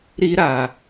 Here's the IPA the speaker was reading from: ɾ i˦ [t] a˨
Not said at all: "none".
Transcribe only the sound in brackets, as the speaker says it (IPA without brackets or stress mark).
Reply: ɾ